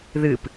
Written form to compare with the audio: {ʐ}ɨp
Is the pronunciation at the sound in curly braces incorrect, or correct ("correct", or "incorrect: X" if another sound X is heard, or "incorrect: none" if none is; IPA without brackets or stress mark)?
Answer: incorrect: ð